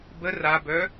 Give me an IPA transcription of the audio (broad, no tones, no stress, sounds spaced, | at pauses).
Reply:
b ə r a b œ